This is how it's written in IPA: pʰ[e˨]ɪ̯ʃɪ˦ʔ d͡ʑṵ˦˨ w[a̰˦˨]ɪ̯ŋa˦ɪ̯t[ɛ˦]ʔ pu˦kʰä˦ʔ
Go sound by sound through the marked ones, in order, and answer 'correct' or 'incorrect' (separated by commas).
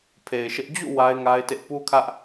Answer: correct, incorrect, incorrect